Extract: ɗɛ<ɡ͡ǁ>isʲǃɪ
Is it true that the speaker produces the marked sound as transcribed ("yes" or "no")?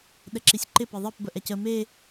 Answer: no